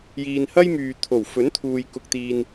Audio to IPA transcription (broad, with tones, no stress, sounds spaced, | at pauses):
j iː˨ n h ɐ˥ j m yː˨ t̪ʰ o˨˩ w f ɵ˨˥ n t̪ʰ uː˨ j k ʊ˨ k̚ t̪ iː˨ n